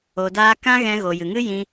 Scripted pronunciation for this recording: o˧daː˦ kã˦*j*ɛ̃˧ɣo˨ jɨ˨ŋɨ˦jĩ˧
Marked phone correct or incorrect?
incorrect